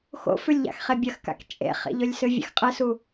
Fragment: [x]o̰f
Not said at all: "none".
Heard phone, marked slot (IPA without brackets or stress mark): x